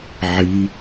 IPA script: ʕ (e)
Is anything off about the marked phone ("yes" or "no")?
yes